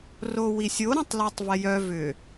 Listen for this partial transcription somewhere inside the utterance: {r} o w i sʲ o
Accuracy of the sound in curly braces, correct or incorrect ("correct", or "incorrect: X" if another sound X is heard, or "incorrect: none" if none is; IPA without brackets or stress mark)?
correct